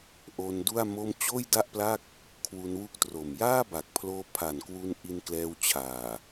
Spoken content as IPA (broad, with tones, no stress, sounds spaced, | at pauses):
ʔ o˧ n d u˥˩ a̯ m o˥˩ m t͡ɕ oː˥˩ j d a˥˩ ʔ p l a˥˩ k̚ | kʰ w u˧ n w u˦˥ k̚ t r o˨˩ m j aː˥˩ b a˨˩ k̚ pʰ l oː˧ pʰ a˨˩ n k w u˧ n ʔ i˧ n k l ɛː˧ w t͡ɕʰ aː˨˩